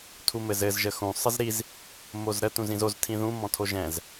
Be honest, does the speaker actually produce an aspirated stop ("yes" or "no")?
yes